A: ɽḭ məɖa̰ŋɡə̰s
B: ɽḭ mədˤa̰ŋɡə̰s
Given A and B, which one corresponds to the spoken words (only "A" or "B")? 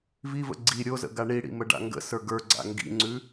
A